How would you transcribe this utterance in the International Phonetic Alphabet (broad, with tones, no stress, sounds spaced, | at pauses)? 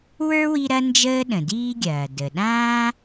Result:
w ə˞˥ w i˦ ɾ ɐ˥ n d͡ʒ əː˥ ɗ ə̃˩ d iː˥ ɡʲ ɐː˩ d ə˩ ɗ ãː˥